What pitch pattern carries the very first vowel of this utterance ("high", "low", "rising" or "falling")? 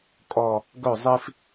falling